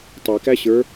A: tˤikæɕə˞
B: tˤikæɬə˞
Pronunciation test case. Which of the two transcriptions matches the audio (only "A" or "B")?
A